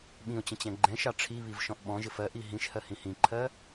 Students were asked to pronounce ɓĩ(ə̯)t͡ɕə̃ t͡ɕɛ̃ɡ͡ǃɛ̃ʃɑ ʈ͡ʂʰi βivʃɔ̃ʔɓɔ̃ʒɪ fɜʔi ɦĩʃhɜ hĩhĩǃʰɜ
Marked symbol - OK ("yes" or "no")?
no